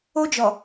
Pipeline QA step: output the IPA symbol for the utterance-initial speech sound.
o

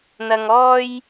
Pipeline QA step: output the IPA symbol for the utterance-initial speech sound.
n̪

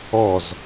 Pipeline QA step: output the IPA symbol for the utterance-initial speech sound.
ɔ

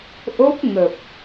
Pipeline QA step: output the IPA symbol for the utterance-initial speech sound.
ʔ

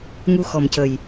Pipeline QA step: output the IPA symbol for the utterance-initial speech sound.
ŋ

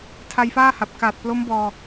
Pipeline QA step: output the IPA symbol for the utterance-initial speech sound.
tʰ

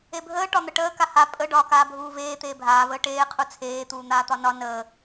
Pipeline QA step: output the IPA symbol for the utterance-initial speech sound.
e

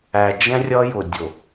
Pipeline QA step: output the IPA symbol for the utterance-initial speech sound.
æ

